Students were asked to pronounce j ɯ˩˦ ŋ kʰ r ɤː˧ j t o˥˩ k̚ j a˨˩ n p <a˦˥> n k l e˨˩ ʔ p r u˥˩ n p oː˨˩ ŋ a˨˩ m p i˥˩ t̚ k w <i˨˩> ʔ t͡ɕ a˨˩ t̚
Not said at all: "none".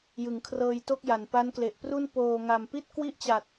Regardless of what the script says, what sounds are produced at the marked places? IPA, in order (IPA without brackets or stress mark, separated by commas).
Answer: a˦˥, i˥˩